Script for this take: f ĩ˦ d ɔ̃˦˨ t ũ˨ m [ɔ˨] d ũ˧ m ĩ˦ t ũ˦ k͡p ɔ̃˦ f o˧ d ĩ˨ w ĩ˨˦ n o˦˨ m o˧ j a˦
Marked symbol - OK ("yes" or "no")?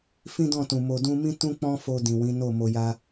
no